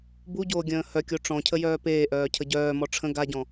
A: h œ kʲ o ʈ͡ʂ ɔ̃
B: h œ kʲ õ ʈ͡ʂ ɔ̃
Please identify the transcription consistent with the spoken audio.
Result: A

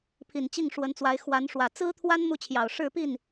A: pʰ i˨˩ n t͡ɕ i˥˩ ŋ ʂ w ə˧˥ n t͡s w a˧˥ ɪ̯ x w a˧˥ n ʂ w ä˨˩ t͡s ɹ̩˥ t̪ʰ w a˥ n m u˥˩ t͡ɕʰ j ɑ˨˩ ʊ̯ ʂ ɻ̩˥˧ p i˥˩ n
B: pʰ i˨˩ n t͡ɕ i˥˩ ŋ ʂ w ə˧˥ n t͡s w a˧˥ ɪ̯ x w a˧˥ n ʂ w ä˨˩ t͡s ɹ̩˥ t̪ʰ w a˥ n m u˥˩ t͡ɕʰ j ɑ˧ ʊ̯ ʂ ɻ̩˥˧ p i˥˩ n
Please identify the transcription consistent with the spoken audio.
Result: A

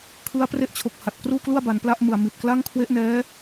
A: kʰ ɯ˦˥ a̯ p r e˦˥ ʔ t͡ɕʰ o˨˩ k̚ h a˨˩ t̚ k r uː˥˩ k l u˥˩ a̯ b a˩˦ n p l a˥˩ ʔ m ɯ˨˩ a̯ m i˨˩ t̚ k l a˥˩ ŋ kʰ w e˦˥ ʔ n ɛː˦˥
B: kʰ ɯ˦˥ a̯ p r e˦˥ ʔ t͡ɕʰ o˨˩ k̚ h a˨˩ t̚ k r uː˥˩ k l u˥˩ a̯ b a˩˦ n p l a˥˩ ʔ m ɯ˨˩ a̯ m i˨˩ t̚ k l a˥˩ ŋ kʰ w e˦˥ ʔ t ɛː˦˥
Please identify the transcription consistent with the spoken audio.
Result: A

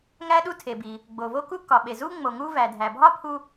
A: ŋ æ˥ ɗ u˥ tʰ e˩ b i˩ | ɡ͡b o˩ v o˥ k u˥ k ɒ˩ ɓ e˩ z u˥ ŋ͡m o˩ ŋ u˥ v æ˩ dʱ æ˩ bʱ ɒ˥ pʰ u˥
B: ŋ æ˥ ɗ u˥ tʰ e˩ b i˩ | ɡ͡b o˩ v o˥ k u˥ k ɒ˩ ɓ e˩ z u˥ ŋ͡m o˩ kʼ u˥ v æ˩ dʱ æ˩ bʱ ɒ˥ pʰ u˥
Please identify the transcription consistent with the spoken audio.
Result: A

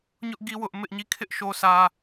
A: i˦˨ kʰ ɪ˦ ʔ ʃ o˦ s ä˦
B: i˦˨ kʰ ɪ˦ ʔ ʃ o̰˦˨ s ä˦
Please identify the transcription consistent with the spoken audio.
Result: A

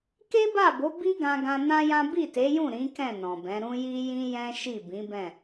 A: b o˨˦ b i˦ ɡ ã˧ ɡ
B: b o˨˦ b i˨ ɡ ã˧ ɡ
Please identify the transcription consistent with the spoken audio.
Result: A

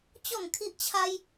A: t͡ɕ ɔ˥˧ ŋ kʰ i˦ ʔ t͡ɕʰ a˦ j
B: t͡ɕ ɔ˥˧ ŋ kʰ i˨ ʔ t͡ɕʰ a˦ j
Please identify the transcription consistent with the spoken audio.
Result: A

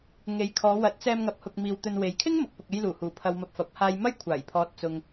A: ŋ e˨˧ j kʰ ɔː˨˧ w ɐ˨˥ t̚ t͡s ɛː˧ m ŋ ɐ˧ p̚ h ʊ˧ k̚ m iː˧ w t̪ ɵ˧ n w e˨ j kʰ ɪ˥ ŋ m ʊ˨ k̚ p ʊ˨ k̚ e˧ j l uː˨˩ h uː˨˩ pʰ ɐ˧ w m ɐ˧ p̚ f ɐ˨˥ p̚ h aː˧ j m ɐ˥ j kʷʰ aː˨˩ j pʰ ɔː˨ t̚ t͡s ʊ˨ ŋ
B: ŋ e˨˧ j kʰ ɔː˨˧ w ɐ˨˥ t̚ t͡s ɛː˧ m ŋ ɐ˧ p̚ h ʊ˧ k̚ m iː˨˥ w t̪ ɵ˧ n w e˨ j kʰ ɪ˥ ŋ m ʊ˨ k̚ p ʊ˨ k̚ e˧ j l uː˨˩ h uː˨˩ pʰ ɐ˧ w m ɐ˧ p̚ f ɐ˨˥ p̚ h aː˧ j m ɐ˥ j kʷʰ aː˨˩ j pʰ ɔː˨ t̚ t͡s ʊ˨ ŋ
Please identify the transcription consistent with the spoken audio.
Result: A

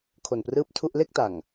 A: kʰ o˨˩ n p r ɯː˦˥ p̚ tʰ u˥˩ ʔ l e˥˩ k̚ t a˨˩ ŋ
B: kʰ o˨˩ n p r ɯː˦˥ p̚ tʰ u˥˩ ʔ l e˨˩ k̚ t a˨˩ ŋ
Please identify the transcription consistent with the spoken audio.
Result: A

